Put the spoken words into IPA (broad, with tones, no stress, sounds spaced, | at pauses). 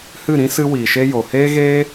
h ɨ˦˨ ɾ ĩ˦ s ɨ˦ w iː˨ ʃ e˦ j o˨ h eː˦ ɣ eː˦